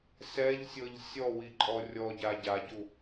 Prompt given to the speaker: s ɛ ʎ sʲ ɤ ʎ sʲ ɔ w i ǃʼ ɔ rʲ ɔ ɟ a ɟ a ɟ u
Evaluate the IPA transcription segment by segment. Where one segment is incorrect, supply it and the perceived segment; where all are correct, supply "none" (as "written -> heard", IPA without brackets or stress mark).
none